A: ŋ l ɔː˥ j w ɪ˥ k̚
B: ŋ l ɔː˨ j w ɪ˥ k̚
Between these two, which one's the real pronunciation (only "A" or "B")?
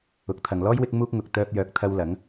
A